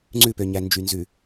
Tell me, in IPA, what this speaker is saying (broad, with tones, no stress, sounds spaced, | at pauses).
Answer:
ŋ͡ǀ ʉ˦˨ p ø˨ ɲ æ˨ n d͡ʒ y˨ n z ʉ˨